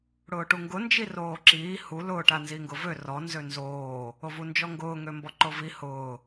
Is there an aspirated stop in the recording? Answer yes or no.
no